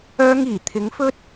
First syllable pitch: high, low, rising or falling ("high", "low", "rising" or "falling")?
high